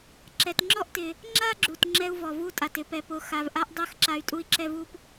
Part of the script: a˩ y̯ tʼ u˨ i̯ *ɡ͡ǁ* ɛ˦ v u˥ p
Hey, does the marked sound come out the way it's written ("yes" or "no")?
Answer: no